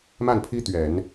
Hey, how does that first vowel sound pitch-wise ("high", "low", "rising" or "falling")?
falling